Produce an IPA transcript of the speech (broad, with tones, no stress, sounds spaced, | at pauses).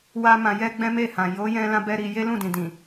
w a˦ m ã˧ j ɛ˦ ɡ͡b ɛ̃˦ m e˦˨ h ã˨ j o˨˦ j ɛ̃˧ l ã˧ b ɛ˧ ɾ i˧ j e˦ l ũ˦˨ d ĩ˨ d ĩ˨